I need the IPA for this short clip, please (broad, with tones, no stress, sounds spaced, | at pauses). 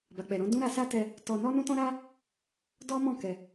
b a˨ k͡p ɛ˨ ɾ ɔ̃˨˦ d ũ˦ ɾ a˧ s a˦ t ɛ˧ | t ɔ˧ n ɔ˦ n ũ˦ t ɔ̃˦ ɾ a˦ | d ɔ˦ m ɔ̃˦˨ k ɛ˨